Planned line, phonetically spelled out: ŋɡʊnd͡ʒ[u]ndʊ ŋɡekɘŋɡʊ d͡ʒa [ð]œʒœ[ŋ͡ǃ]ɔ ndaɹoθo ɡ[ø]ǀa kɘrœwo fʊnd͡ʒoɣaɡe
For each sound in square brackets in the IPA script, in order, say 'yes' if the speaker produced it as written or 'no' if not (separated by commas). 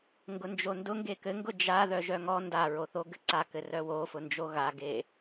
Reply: no, yes, no, no